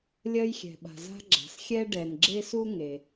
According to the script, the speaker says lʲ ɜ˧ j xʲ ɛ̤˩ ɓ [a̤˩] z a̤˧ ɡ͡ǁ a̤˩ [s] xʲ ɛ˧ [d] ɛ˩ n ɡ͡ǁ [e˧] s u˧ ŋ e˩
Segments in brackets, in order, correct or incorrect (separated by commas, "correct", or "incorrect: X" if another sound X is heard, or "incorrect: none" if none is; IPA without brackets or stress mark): correct, correct, incorrect: ɖ, correct